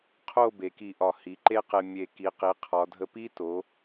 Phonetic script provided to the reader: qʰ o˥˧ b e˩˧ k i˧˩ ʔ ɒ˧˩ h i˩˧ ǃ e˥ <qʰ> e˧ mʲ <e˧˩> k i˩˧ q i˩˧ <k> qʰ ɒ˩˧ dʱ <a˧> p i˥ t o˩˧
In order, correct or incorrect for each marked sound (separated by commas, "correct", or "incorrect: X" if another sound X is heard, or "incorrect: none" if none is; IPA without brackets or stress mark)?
incorrect: q, correct, incorrect: none, incorrect: ə˧